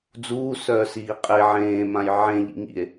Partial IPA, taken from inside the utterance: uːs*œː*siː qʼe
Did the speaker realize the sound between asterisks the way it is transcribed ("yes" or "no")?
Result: yes